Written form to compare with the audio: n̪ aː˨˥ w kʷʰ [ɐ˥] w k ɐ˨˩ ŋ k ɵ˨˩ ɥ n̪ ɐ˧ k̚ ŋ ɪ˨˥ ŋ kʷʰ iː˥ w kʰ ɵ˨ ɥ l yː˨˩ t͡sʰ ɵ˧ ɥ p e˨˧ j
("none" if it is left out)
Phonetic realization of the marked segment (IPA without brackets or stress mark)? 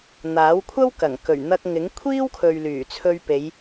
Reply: ɐ˥